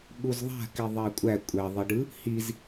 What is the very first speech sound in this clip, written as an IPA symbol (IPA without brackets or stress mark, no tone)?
ɠ